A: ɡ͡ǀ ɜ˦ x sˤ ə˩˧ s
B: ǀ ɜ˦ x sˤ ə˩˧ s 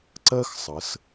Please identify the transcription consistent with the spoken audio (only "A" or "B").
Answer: B